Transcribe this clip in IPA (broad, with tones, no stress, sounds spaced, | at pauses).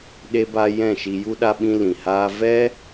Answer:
ɗ e˧ b a˧ j ɛ̃˦˨ ʃ i˧ j u˦ ɗ a˧ ɓ ĩ˧ l ĩ˨ h aː˧ v ɛ˦